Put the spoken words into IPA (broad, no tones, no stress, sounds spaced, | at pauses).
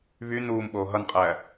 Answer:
β y n uː m ɓ oː ɦ ʌ n qʼ æː